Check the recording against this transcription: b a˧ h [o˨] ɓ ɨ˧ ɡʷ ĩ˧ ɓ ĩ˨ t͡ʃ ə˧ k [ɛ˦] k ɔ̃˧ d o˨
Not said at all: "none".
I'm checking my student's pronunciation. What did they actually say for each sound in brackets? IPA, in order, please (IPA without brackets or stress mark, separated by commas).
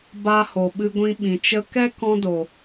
o˨, ɛ˦